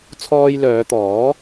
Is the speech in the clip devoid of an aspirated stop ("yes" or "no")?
no